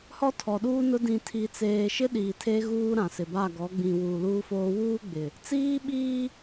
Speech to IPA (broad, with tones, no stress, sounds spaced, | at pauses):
h ɔ˦ tʰ ɔ˨ ɗ uː˦ n ʊ˦ d ĩ˨ tʰ i˨ t͡s eː˨ ʃ ɪ˦ ɗ iː˨ tʰ e˦ ɣ uː˦ ɾ ã˨ s ɪ˨ b a˦˨ ɡ ɔ˨˦ ɡ͡b ĩ˨ w uː˨ l uː˦ f oː˦ w uː˦ ɡ͡b ɪ˨ | t͡s iː˦ ɓ iː˦